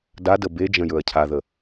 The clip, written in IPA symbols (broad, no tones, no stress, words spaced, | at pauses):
dadə bed͡ʒə̃ jɵɐ̯cʰaðə